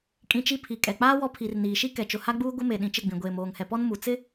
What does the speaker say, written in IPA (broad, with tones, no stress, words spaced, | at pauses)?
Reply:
kʼĩ˦t͡ʃi˦ pʰi˨kʼɛ˨k͡paː˦ wɔ˦pʰi˨r niː˨ʃi˦ kɛ˨t͡ʃʊ˨ha˦ɡ͡buː˦ ɡʷɪ˦me˨ ɗĩ˨t͡ʃɪ˦˨ɡ͡bĩ˨ ɡʷeː˨moː˨ŋhɛ˨pɔ˦n mu˨t͡sɪ˦